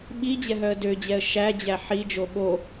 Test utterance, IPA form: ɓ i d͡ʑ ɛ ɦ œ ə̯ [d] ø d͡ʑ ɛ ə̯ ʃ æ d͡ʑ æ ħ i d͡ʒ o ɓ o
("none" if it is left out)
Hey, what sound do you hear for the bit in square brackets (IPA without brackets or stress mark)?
d